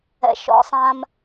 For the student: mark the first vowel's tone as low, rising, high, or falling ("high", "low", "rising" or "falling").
low